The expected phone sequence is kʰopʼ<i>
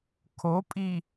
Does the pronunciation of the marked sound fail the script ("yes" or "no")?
no